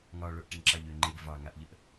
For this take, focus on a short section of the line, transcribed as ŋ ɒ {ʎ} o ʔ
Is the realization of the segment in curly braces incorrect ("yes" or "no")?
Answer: yes